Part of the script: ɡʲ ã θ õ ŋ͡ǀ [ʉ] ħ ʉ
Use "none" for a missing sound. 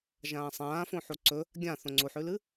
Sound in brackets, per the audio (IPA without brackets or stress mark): u